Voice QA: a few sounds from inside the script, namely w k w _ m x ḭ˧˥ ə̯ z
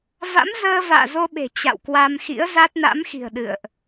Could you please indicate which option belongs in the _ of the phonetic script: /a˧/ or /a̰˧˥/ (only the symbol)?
a˧